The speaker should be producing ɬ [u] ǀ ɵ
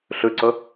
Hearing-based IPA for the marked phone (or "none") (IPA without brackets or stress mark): ʉ